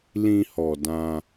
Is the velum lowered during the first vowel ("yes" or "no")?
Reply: yes